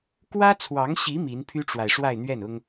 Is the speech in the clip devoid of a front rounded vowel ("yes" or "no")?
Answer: no